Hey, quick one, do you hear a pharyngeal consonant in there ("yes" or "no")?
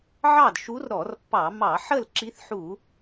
yes